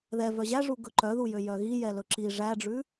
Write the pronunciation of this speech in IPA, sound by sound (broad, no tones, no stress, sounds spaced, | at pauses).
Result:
ð ɛ v œ ʑ æ ʐ u ɡ ɵ ǃ œ ð u j ø j œ ɣ i j ɛ l ɵ ǁ i ʐ æ ɖ͡ʐ ʉ